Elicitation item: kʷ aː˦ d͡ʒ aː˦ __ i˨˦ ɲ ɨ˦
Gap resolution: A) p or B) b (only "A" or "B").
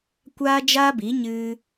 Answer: B